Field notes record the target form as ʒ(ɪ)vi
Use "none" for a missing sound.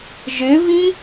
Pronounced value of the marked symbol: ɪ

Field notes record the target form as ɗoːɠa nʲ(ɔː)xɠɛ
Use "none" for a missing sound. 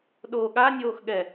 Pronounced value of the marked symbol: oː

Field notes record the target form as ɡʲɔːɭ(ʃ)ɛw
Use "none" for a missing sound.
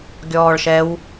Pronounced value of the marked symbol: ʃ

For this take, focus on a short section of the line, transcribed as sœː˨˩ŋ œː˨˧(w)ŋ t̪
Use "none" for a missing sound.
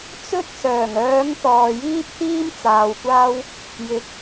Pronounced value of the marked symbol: none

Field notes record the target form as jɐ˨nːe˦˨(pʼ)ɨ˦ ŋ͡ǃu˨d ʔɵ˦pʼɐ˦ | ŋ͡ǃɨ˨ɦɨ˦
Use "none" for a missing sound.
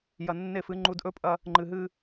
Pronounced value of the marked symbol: f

